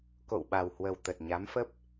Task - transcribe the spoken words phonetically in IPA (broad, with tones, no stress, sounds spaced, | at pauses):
k o̰˧˨ w ɓ a˨˩ w h w ə˨˩ w t̪ ə˨˩ t̚ ɲ a˨˦ m f ə˦˥ p̚